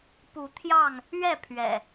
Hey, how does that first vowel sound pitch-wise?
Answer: rising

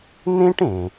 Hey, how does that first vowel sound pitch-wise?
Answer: high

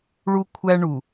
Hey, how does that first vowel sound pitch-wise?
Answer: high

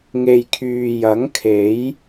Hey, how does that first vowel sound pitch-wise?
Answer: low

